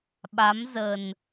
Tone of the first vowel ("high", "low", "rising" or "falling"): rising